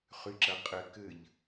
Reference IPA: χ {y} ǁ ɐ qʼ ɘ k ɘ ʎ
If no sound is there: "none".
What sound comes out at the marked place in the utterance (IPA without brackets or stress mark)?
y